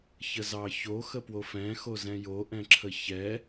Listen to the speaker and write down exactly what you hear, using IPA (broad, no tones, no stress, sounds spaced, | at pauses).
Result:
ç ə z ɑ ç o x ə p w o f ɛ̃ x o z ɛ̃ j o ʔ ɛ̃ ǁʰ ə ç ɛ